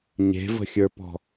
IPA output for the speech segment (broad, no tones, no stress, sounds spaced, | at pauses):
ɲ e̤ v ə̤ xʲ ə˞ p ɔ̤